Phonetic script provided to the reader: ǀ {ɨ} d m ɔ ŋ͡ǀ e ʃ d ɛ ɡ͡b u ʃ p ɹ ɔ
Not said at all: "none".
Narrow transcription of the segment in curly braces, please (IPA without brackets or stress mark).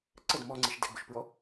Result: ə